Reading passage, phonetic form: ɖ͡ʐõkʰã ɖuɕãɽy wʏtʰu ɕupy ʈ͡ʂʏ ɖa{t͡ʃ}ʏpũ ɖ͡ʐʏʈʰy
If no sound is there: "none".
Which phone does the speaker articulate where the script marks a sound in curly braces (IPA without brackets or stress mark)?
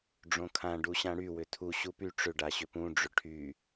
ɕ